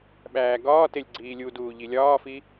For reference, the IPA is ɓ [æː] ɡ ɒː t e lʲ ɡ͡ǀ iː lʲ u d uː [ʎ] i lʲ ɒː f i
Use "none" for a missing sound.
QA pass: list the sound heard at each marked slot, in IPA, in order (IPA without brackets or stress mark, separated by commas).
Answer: æː, ʎ